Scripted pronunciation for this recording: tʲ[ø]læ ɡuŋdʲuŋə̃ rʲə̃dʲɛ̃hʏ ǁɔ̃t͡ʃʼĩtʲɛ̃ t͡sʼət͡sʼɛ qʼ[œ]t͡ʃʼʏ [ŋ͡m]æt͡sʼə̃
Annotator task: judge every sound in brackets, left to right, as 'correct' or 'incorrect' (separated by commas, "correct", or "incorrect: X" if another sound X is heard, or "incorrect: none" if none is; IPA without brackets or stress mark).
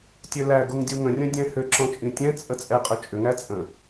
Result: correct, incorrect: ø, incorrect: ŋ